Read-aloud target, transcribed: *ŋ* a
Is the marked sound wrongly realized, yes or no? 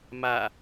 yes